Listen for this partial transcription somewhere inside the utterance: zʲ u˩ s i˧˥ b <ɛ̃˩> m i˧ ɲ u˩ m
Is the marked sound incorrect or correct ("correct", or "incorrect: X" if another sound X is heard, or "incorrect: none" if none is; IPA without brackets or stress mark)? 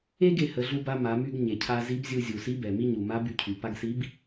incorrect: ɛ˩